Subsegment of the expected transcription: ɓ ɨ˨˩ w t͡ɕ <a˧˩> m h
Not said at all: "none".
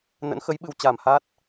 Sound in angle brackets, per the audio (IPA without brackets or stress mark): a˧˩